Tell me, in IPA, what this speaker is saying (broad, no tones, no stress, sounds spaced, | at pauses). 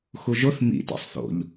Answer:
x u ʒ o θ m ḭ t ḭ sˤ θ o̰ ʎ